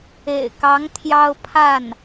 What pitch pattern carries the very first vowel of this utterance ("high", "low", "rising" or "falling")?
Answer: low